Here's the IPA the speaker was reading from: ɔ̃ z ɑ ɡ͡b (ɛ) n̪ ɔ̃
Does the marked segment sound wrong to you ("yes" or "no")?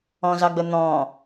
yes